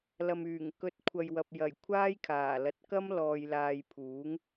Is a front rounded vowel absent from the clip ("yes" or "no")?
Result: no